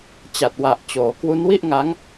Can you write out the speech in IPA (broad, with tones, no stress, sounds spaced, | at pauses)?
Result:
t͡ɕ a˨˩ t̚ w a˨˩ ʔ t͡ɕ oː˩˦ k w u˦˥ n w i˥˩ ʔ ŋ a˦˥ ŋ